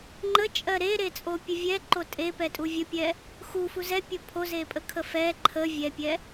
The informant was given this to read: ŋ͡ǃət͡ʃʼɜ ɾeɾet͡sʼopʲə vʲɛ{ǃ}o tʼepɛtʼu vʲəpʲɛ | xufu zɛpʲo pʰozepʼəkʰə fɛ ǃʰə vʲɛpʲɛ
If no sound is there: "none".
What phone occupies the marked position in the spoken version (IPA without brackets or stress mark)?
ǃ